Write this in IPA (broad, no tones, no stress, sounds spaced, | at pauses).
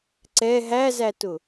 ǀ ɛ ɦ æ z æ t ʊ